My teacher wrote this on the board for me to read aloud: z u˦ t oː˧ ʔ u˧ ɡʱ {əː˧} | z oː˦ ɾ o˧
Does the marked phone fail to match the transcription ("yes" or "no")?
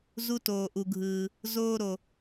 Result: yes